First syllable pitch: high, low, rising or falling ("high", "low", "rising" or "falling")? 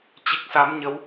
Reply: low